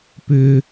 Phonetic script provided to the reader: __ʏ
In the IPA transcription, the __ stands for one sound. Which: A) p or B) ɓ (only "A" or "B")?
A